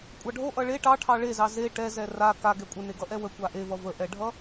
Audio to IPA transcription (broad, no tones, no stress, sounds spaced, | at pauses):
kʷʼ ɑ ɖʱ o ʔ ʌ ɭ e ʈ ɑ ʈʰ ɑ ɭ e z ɑ z e ʈ ɛ z ɛ r a k a ɡ ɛ kʷʼ ə n e ɡ ʌ ʔ ɛ w ə kʷ a ʔ e v ʌ v ə ʔ ɛ ɖʱ ʌ